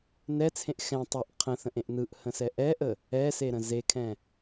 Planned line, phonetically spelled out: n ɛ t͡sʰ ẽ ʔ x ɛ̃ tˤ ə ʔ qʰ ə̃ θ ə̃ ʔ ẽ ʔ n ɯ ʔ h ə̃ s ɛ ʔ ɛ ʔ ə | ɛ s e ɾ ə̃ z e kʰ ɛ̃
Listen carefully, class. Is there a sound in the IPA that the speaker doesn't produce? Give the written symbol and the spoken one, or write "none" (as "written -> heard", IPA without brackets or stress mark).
none